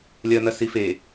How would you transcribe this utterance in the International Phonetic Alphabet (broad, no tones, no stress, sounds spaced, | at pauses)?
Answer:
lʲ ɐ n̪ ɐ s i f e